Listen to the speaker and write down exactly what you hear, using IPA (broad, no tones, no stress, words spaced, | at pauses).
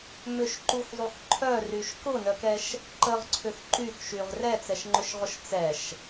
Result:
mʏʃǃuxzˤux ǃʰœryʃ kʊnœkɛʃ | ǃəʁǀʰʏx ǃyxʃyʁ rɛt͡sɛʃŋ͡ǃʏʃʁʊʃ t͡sɛʃ